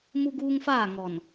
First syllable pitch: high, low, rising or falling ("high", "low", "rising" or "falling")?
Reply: high